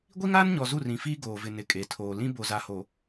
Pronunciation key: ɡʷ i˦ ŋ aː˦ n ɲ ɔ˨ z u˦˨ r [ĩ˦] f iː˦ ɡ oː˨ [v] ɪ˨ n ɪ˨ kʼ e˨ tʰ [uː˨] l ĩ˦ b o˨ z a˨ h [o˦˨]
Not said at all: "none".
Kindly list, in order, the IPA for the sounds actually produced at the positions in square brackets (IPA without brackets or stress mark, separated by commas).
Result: ĩ˨, v, oː˨, o˨